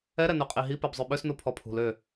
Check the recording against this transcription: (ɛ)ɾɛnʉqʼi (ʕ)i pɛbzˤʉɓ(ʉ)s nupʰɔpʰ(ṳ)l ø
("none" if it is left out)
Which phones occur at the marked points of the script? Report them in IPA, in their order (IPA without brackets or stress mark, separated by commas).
ɛ, ɦ, ø, ṳ